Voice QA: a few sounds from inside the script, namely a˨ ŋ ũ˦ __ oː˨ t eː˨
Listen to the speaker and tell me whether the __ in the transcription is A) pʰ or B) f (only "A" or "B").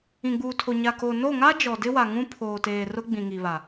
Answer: A